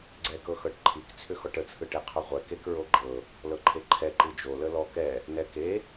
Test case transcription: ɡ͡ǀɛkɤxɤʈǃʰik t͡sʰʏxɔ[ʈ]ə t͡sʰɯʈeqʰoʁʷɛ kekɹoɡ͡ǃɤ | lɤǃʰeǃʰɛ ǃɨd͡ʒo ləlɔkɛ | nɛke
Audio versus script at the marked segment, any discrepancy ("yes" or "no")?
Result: no